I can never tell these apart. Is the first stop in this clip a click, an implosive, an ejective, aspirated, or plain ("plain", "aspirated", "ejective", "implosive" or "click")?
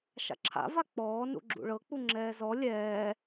click